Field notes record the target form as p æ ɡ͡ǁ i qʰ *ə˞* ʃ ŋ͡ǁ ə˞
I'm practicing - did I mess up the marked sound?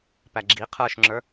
no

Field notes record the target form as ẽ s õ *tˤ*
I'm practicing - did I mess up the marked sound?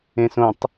no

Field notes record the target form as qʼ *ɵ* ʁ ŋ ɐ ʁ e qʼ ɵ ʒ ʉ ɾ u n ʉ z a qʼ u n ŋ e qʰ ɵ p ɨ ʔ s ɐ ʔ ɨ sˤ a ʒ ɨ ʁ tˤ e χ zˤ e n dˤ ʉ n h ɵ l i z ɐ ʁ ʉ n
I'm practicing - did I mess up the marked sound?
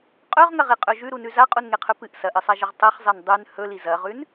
no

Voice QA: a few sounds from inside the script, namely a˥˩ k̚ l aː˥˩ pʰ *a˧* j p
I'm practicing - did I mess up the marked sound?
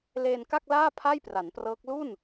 yes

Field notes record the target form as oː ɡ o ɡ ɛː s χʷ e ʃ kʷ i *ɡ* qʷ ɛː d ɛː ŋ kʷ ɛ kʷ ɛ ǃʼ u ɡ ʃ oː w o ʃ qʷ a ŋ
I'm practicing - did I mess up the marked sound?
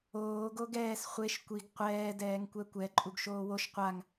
no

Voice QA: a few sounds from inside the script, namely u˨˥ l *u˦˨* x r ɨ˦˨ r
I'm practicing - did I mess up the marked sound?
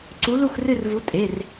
no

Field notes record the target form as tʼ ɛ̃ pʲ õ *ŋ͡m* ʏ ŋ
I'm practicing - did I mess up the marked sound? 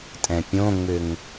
no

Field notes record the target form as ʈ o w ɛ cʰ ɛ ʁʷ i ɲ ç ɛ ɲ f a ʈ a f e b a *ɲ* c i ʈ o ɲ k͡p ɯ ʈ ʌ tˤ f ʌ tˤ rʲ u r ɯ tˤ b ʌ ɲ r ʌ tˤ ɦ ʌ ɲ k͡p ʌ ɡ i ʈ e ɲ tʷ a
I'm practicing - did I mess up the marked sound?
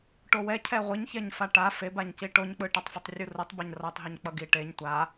no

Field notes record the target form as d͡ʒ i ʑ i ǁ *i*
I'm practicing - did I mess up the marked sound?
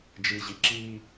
no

